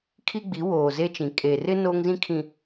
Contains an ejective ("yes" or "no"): yes